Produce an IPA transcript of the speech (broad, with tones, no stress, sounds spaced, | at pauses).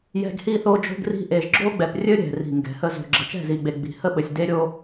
j ɛ̤˦ ɡ h i˦ θ o˦ d͡ʒ o̤˦ ɡ r i̤˦ ʔ e˨ ʒ ɡ͡ǁ o˦ ɡ͡b ɛ˨ p rʲ ɘ˦ ɾʲ ɛ̤˨ r i̤˨ ŋ ɡ ɛ̤˨ h ə˦ z o̤˨ ɡ͡ǁ ə˨ t͡ʃ ɛ̤˦˨ z i˨ ɡ͡b e˨ ɡ͡b i̤˨ h ə˦ ɓ ɘ˨ sʲ d e˦ ɾʲ o˦